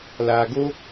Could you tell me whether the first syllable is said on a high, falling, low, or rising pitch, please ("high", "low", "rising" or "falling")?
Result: low